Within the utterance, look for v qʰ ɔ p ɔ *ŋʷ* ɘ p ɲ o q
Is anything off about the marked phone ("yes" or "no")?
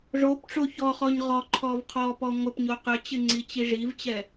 no